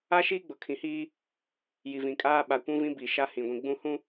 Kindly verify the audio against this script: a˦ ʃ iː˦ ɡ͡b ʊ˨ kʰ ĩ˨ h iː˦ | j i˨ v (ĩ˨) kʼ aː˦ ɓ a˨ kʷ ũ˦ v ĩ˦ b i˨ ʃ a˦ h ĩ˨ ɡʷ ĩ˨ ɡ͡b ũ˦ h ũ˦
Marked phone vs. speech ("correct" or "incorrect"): correct